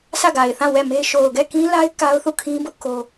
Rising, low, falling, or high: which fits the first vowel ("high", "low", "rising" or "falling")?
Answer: falling